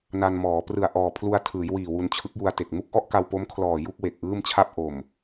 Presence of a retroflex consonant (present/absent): absent